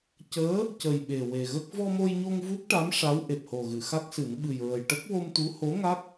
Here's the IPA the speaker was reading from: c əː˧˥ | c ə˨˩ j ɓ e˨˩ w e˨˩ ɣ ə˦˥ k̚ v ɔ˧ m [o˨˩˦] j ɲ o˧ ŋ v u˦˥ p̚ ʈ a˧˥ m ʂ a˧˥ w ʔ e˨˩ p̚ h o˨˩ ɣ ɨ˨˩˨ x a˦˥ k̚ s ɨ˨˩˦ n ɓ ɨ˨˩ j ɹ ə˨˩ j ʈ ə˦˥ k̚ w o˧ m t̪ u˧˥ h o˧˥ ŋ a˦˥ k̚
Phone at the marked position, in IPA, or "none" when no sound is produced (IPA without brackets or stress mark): o˧